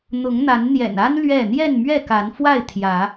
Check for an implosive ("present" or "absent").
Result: absent